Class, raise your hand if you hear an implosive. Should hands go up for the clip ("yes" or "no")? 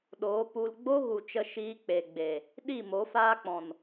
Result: yes